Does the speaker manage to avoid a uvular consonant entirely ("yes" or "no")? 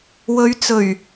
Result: yes